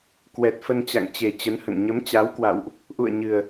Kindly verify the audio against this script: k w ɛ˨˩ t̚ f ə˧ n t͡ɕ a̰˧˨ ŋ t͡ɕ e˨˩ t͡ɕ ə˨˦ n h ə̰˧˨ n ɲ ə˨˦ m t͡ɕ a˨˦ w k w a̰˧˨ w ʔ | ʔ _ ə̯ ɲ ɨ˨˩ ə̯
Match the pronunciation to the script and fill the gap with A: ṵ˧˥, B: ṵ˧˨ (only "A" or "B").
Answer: B